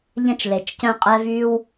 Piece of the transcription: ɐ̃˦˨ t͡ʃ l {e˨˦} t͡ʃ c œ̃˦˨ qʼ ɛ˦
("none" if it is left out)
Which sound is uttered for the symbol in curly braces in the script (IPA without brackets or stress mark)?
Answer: e˨˦